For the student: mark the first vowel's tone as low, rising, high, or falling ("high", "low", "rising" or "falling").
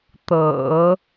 low